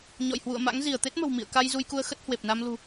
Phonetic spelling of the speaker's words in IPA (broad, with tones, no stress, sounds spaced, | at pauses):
ɲ ɔ̰˧˨ j h w ṵ˧˨ ə̯ m a̰˧˥ ŋ z i˧˩ ə̯ t̪ e˦˥ t̚ m ə̤˨˩ w m ḭ˧˨ ə̯ k a˧ j z u˧ j k u˧ ə̯ x ə˦˥ t̚ h w e˨˩ p̚ n a˧ m l ṳ˨˩